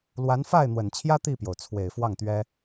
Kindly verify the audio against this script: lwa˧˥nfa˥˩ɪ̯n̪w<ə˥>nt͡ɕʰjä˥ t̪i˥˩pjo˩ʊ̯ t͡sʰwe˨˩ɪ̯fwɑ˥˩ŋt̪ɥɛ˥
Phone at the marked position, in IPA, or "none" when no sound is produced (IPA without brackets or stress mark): ə˨˩